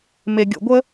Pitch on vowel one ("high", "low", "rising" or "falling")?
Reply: low